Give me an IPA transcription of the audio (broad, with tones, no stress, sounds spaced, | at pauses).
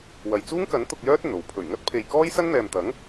w ɐ˨ j t͡s uː˥ ŋ k ɐ˨˥ n t̪ ʊ˧ k̚ j œː˥ t̚ ɵ˨˩ n o˨ w pʰ ɵ˨˩ ɥ ŋ ɐ˥ t̚ pʰ e˨ j k ɔː˥ j s ɐ˥ n n̪ ɛː˨ m t̪ ɐ˨˥ ŋ